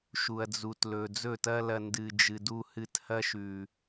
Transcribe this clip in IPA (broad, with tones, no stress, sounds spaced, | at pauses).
ʃ u˨ ɐ̯ d͡z u˨ t l ɵ˨ d͡z ɵ˦˨ t ɐ˦ l ɐ˧ n d ɨ˨ d͡ʒ ɨ˨ d u˧ h ɨ˧ t h ɐ˦ ʃ ʉ˨